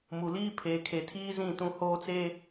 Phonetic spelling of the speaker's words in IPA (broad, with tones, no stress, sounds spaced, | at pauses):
m u˨ l iː˦ pʰ eː˨ kʰ e˨ tʰ iː˦ z ĩ˦˨ t ũ˦ h oː˦ t͡s eː˦